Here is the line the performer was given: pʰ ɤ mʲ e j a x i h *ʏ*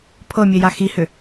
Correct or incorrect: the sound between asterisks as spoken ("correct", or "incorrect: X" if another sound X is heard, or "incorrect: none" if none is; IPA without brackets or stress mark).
correct